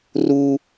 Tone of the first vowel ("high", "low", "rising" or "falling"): high